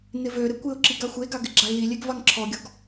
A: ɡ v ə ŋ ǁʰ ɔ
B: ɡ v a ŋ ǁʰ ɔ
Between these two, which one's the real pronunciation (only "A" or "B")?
B